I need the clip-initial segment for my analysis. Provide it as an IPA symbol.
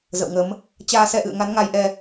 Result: z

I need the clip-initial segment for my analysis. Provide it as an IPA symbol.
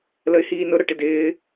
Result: l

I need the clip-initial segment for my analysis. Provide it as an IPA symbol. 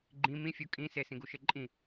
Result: ɡ͡ǃ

